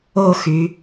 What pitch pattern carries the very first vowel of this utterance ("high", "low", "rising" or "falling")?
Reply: falling